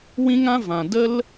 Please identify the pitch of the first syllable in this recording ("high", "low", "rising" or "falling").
high